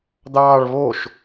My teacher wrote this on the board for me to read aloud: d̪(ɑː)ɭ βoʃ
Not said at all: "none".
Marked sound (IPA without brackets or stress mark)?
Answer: ɑː